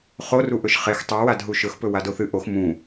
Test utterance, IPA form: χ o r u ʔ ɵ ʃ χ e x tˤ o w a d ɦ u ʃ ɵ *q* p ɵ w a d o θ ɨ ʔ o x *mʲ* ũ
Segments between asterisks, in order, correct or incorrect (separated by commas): incorrect, incorrect